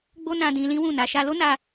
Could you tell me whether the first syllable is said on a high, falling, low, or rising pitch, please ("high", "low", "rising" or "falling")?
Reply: high